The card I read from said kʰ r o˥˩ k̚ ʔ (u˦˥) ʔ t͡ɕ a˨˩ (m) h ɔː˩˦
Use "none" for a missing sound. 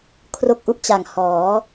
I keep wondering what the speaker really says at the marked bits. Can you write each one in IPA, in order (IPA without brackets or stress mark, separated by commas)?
u˥˩, ŋ